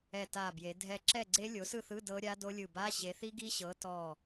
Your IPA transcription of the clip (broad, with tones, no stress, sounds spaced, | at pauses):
ɛ˧˩ t a˧˩ b j e˨˦ dʱ ɛ˥˨ ǁ ɛ˥˨ ɡ͡ǀ e˦˥ lʲ o˨˦ s ɯ˥˨ θ ɯ˧˥˧ d ɤ˦˥ ɾʲ a˦˥ d o˦˥ lʲ ɯ˧˩ b a˧˥˧ ɕ e˨˦ θ i˦˥ ɡ i˦˥ ɕ ɤ˨˦ t ɔ˧˩